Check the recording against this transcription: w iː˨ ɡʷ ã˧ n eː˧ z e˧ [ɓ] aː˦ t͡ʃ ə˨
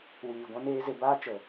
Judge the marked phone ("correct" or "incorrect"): incorrect